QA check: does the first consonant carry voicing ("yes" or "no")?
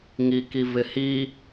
yes